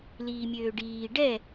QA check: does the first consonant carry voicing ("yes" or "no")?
yes